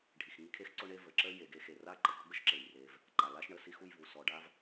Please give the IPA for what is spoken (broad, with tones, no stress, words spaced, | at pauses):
ɖʱi˩xŋi˦ kʰe˦x ǀʊ˦ɳe˦ və˩ ǁə˥ je˨ɡe˦ xe˩ra˥ǃə˩ɡɔ˥ ɡə˥ʃǁe˩jre˨v | ǃa˩la˥ʃ ɳə˩ si˥xu˦jvu˩ sɔ˨ɖa˥v